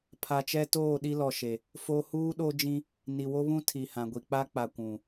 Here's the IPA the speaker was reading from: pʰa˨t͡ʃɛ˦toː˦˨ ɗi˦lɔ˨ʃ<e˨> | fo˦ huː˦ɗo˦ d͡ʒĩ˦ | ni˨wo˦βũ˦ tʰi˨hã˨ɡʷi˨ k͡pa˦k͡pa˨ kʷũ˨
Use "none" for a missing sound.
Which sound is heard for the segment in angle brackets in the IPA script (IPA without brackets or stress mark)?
e˨